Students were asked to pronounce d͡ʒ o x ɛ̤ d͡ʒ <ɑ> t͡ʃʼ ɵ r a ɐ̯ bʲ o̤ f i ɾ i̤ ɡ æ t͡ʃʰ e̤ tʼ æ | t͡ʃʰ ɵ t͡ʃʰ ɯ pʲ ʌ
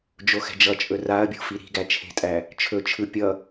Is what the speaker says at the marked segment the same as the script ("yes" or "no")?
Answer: no